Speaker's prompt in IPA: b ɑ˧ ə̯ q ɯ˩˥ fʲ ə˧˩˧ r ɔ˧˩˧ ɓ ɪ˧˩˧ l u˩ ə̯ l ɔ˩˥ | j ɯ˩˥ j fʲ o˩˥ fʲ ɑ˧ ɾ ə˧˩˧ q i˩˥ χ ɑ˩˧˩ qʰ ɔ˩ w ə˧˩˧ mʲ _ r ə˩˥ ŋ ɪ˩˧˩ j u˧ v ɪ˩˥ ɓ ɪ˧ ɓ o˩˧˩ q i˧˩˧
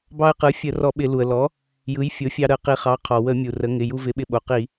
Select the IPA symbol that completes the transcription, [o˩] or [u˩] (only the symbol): u˩